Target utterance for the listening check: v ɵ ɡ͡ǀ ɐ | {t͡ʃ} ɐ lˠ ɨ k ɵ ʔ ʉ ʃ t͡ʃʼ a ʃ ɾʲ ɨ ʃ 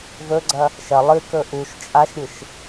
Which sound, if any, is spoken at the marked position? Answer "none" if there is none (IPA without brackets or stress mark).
ʃ